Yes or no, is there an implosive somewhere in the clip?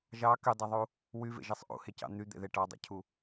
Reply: no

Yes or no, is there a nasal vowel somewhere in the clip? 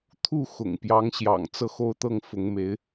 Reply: no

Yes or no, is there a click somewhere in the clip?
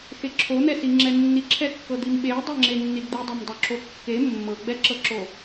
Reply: yes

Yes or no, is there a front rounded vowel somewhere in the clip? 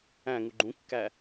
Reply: no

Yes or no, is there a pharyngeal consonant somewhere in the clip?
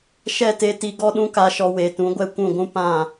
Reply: no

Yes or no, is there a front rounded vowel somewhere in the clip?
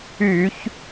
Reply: yes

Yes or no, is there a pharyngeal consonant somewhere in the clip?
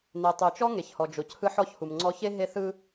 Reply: yes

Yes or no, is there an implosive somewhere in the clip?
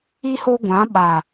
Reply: yes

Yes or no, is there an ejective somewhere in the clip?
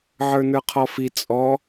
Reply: yes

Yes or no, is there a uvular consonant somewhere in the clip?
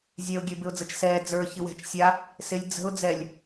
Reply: no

